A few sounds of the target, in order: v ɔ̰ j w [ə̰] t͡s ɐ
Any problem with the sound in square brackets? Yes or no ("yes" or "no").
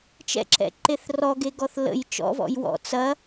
yes